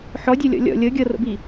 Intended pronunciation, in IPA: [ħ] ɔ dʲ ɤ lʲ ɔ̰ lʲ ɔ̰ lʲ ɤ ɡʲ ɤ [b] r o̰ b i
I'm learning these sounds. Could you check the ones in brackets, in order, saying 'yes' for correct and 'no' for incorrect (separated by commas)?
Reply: yes, no